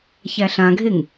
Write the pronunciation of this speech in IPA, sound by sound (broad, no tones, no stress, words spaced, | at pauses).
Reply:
çæɬãɡʱeŋ